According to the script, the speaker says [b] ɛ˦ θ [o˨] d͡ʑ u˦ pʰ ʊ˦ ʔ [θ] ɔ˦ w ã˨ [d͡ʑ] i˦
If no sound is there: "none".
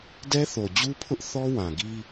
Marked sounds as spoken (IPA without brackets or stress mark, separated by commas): d, o˨, θ, ɡ